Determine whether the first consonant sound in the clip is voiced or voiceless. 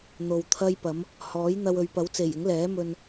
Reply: voiced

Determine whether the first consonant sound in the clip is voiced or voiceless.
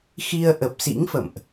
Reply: voiceless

